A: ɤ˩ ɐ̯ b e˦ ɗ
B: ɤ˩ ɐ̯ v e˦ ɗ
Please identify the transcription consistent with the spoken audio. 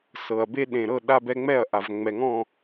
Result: A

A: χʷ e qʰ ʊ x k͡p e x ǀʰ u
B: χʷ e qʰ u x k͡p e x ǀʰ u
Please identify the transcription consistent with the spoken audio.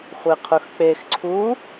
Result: A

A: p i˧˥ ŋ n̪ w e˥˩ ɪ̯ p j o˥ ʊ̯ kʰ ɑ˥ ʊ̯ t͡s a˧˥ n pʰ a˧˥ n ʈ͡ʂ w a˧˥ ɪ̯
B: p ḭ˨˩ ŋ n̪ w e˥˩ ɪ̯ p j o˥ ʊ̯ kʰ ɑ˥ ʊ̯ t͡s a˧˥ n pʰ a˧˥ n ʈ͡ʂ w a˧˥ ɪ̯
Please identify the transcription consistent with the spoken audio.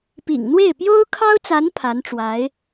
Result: B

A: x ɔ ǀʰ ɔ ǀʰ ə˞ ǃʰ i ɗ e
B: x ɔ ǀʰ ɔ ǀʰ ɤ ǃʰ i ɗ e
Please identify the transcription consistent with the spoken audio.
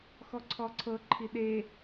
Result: B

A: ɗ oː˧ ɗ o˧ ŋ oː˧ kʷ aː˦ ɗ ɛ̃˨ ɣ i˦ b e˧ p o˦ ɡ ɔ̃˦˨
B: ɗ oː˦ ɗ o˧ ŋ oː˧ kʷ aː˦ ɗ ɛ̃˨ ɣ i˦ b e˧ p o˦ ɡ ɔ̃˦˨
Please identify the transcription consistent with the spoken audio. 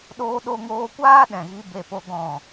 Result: A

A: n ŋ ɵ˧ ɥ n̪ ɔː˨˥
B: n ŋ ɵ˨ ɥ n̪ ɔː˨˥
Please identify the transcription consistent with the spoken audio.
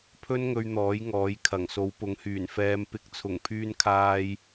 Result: A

